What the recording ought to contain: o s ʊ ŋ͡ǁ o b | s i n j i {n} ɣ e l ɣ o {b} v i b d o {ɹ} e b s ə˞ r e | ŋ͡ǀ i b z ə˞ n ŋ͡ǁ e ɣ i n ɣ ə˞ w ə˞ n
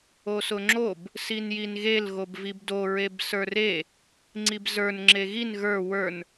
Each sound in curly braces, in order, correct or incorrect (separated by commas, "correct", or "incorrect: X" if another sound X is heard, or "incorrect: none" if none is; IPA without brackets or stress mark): correct, correct, correct